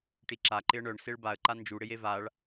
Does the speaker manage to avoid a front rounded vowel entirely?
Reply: no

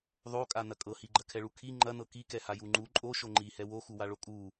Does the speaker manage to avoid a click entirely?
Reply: no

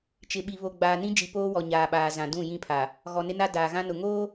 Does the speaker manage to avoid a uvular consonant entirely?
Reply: yes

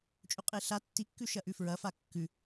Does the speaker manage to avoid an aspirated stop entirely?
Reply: yes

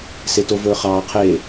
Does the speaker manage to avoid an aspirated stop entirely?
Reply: no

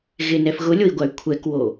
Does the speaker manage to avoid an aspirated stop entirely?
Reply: no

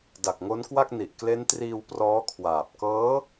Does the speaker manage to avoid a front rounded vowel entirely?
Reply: yes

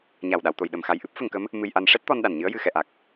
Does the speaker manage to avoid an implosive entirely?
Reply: no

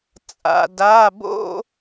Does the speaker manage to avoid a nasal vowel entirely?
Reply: yes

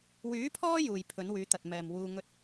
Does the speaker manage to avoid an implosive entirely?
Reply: yes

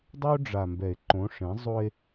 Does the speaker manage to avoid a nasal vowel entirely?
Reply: no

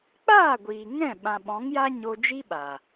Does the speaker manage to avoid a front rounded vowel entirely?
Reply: yes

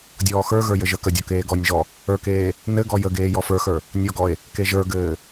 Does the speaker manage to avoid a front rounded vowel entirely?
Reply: yes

